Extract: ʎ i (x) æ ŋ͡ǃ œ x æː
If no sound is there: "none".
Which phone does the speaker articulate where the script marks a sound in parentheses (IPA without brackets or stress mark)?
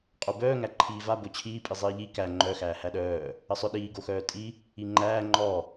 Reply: k